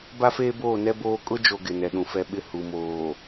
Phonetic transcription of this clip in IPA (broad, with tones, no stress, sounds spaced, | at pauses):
b a˦ f eː˦ b oː˦˨ n ɛ˦ b oː˦ kʼ ʊ˦ d͡ʒ o˨ ɡ ɪ˨ n ɛ˨ ɗ ũ˨ f ɛ˦ ɓ ɪ˦ h u˨ m oː˨